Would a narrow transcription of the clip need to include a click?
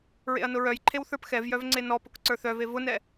yes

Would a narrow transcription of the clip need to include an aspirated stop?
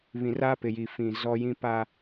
no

